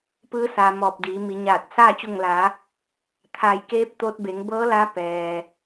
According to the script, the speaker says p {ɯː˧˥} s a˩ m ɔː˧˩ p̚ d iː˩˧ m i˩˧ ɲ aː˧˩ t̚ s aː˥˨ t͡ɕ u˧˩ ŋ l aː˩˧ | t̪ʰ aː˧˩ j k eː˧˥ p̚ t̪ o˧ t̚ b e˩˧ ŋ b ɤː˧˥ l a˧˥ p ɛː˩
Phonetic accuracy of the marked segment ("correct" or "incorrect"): correct